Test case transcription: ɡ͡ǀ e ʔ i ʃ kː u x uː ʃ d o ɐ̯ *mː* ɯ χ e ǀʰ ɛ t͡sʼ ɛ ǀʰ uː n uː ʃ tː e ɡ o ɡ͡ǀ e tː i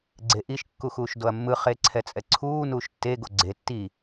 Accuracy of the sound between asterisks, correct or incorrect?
correct